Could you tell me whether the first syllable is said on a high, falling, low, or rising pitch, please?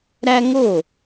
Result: high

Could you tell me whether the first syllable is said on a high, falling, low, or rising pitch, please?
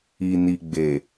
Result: low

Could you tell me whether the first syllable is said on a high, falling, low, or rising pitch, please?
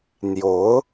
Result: rising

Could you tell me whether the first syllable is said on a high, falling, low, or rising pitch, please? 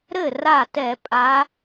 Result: falling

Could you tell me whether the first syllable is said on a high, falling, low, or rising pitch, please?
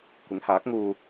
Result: rising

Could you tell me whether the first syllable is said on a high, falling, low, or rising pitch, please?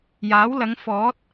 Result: rising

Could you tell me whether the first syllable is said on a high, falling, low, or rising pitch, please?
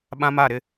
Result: high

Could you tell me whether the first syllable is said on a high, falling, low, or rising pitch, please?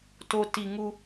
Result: low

